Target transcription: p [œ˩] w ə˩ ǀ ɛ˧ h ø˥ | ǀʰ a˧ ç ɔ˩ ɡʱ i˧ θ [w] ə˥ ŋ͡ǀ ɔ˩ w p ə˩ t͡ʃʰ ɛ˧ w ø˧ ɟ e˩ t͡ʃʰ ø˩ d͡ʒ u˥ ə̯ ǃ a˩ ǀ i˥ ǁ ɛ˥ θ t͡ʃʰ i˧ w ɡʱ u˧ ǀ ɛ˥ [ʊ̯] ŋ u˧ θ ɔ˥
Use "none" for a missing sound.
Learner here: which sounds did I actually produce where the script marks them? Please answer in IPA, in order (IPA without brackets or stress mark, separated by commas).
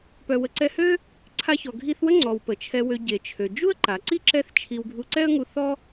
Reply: œ˩, w, ə̯